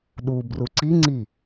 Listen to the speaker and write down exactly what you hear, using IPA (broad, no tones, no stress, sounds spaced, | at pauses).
ɗ u b r u ǀ i ŋ͡ǀ i